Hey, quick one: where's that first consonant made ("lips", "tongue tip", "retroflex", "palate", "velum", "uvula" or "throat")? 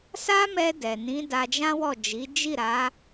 tongue tip